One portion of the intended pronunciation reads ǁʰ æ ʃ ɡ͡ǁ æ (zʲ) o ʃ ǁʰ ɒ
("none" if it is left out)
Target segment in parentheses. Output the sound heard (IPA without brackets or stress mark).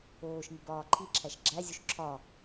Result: zʲ